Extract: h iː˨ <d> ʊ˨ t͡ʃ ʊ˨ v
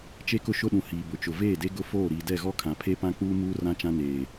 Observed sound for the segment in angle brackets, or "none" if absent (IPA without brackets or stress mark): b